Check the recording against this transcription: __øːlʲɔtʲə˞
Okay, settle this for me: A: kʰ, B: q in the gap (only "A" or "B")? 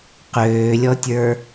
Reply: B